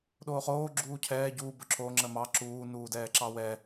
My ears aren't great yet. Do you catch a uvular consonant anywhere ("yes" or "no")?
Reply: yes